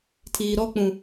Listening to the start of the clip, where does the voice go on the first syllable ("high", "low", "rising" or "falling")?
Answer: low